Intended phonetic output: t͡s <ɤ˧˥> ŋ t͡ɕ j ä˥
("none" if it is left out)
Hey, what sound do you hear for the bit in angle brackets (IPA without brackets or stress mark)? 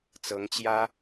ɤ˧˥